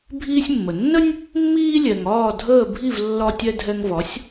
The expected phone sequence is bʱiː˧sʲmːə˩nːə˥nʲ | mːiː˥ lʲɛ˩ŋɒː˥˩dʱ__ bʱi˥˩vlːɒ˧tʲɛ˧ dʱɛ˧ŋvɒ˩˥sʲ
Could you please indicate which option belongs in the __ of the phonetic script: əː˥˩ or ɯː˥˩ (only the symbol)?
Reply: əː˥˩